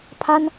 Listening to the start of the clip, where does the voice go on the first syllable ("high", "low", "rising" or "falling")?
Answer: high